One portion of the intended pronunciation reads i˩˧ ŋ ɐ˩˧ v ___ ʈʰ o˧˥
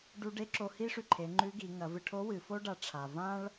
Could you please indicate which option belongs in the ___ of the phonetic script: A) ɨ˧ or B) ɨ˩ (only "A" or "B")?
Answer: A